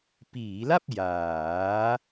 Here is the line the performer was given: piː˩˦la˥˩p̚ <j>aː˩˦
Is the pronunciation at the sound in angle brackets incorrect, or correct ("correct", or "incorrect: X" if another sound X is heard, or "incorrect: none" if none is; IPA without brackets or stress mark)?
correct